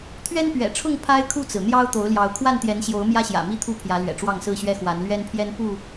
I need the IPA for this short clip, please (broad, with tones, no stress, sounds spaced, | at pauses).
t̪ʰ ɥ ɛ˦ n p ɥ ɛ̰˨˩ ʈ͡ʂʰ ʊ˥˨ ŋ pʰ a˦ ɪ̯ kʰ u˥˨ t͡s ɹ̩˩ n̪ j ɑ˦ ʊ̯ t̪ o˨˦ ʊ̯ l j ɑ˨˦ ʊ̯ kʰ w a˥˨ n t̪ j ɛ˨˦ n ɕ j o˨˦ ʊ̯ m j ä˦ ɕ j ä̰˨˩ m i˥˨ t̪ʰ u˥˨ pʰ j ä˨˦ l ɥ ɛ̰˨˩ ʈ͡ʂ w ɑ˥˨ ŋ s ɹ̩˥˨ ɕ ɥ ɛ˦ x w a˨˦ n l ɥ ɛ˦ n pʰ j ɛ˦ n p u˥˨